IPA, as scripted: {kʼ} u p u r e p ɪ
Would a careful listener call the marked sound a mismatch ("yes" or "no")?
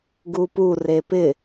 yes